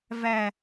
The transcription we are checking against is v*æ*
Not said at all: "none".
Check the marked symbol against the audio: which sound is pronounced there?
æ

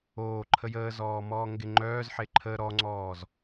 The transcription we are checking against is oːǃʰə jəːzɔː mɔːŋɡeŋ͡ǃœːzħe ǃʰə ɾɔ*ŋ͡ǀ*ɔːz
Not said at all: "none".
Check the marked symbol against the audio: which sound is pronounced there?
ŋ͡ǀ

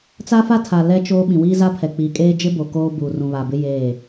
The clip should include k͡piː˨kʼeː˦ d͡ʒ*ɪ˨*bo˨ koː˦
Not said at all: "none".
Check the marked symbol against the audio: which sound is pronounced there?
ɪ˦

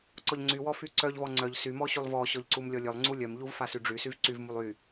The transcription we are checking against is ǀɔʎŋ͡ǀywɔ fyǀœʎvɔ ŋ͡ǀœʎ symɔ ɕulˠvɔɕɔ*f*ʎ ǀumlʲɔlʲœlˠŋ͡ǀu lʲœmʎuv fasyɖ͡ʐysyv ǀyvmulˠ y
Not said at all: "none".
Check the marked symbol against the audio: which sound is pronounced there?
none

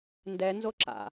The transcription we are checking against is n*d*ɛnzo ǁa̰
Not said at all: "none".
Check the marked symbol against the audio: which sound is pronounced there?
d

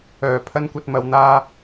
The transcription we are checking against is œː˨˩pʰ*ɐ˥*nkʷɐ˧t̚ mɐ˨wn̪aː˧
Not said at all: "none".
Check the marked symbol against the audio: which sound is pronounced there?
ɐ˥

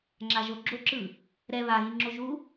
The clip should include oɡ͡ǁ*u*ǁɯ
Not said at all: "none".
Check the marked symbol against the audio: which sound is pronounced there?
o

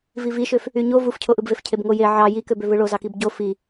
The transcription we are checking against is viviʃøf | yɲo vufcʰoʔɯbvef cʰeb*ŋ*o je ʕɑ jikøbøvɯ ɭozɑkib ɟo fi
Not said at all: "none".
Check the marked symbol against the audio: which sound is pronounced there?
ŋ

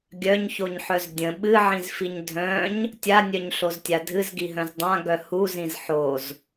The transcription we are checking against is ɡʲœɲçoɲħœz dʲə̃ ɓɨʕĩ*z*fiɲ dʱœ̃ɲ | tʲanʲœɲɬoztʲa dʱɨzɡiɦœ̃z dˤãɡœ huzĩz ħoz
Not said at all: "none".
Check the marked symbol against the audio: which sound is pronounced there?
z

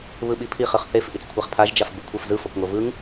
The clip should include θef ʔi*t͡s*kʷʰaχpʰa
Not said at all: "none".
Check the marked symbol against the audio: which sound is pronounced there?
t͡s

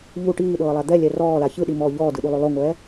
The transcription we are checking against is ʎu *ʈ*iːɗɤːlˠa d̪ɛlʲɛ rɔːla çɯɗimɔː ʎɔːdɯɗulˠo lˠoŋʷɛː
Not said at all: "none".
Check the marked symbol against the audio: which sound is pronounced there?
ʈ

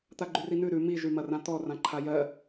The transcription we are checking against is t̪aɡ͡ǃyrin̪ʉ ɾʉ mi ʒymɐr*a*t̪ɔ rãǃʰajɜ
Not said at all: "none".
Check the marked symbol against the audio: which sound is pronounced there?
ã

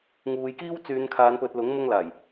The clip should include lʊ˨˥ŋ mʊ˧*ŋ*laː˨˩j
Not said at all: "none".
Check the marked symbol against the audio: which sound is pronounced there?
ŋ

